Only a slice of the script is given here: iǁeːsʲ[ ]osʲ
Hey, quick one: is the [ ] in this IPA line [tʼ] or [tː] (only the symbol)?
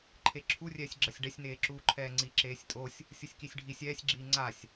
tʼ